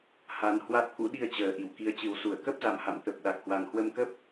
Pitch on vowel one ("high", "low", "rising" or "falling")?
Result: rising